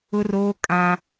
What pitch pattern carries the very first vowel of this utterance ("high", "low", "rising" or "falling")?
high